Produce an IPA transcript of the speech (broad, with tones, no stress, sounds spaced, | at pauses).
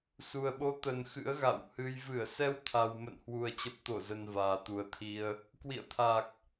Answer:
s u˨˩ ə̯ ɓ o˨˦ t̪ ə˨˩ n x ɨ̰˧˥ ə̯ ɣ a̰˧˨ w h ɨ˧ j v ɨ˧˩ ə̯ s ɛ˧ w t̪ʰ a˨˩ w m ə̰˧˨ n h w u˨˩ ə̯ t͡ɕ ə˨˩ p̚ t̪ o˧˩ z ə˨˩ n v aː˨˩ t̪ u˨˩ ə̯ t̪ʰ i˧ ə̯ | k w ḭ˧˨ ə̯ t̪ʰ a˨˩ k̚